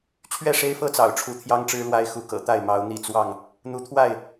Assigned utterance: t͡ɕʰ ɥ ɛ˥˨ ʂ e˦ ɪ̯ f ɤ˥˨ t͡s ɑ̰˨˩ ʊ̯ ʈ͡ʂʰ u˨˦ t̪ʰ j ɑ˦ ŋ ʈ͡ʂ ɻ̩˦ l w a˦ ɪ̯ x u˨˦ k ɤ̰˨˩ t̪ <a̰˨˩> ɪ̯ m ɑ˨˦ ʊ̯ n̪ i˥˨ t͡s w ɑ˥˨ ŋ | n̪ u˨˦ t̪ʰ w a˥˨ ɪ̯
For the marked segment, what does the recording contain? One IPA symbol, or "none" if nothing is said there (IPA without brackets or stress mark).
a˥˨